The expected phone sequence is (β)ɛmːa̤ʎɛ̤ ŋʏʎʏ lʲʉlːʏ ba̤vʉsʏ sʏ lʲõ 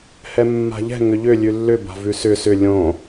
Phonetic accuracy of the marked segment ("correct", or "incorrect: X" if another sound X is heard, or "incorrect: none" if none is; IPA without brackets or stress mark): incorrect: h